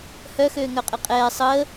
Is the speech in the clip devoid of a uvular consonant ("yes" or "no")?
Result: no